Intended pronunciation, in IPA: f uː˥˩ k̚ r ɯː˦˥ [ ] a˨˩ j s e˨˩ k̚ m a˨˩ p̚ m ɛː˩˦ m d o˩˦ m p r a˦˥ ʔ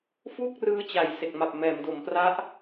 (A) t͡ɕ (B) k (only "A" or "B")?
A